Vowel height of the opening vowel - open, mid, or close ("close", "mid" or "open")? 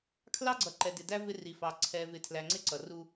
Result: open